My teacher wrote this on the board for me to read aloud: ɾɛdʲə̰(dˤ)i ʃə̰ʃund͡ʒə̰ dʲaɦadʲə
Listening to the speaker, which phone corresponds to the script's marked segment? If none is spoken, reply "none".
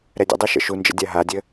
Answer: dˤ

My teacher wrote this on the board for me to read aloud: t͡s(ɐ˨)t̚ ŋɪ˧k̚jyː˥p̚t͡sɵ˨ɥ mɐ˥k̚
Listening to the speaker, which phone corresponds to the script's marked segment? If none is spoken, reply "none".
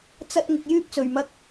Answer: ɐ˥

